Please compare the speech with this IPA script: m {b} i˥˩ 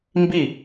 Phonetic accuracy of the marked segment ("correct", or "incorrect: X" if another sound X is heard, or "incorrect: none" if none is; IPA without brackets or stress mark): correct